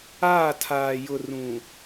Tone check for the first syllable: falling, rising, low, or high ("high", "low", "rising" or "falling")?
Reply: falling